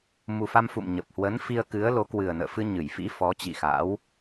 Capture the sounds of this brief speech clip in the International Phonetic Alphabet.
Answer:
mu˨˩fa˧mfṵ˧˨m ɲə˨˩p̚hwə˨˦n fi˧ə̯kɨ˨˦ə̯lo˨˦ kwɨ˨˩ə̯nə̰ː˧˨fɨ˧ ɲɨ˧˩jfḭ˧˥fɔ˨˦ t͡ɕḭ˧˨ xa̰˧˥w

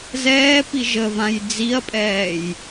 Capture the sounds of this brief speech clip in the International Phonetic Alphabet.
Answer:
zɛːpi ʒəvãj d͡ziɐ̯pʼɛːj

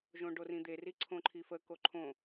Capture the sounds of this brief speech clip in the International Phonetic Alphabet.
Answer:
ʒõɖorĩd̪e riǀʰõǃʰifə koǃʰõ

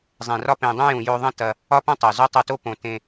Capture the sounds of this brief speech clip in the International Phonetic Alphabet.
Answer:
zˤẽ˨rɒ˧ pẽ˨dˤũ˧jũ˨ jo˧ðˤɐ̃˦ tɐ˧ | ɒ˦pɐ̃˦tˤo˨ zo˦tˤo˧to˦ põ˧ tẽ˧

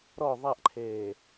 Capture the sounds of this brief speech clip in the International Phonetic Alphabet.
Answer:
ɾɔ ðˤaʔǃʰeː

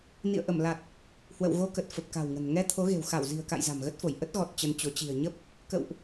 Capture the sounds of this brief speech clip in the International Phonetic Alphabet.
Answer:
nḭ˧˨ə̯ʔə˧˩m la˨˩t̚ | hwə̰˧˨wɣo˧kə˨˩t̚ fə˨˩p̚ka̤˨˩wŋə̤˨˩n ŋɛ˧ t̪ʰo˨˦ɣe̤˨˩w xa˧˩wzi̤˨˩ə̯ka̰˧˨j za̤˨˩mɣə˦˥t̚fo˧˩j ʔə˦˥t̚ɣɔ˨˩t̚ t͡ɕə˧nt͡ɕo˨˦ t͡ɕi̤˨˩ə̯ ɲə˦˥p̚ | kə̰˧˨wʔ

